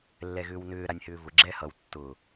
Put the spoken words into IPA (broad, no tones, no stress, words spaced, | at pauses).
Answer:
lːɛɣʏːwnʏː ɾanʲhʏːvʊ ɡ͡ǁɛhʌw tːʊ